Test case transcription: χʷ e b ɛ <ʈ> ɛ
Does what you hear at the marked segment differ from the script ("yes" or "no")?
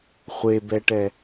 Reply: no